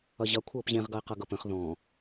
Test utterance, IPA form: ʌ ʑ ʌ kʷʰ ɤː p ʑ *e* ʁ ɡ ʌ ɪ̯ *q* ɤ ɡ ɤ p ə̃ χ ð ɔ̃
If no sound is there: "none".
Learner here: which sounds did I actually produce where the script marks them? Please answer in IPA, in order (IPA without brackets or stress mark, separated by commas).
ẽ, q